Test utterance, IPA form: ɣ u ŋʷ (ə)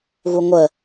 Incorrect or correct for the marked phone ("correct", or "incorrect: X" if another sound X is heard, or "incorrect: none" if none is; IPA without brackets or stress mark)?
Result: correct